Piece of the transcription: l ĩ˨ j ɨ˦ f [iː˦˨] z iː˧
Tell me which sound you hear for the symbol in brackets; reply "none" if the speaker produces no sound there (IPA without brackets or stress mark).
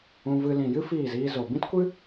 iː˦˨